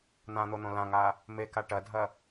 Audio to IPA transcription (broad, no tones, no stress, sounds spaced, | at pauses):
n̪ ã n̪ o n̪ õ l ã ŋ a | m e k a ʈ ɐ dʱ ɐ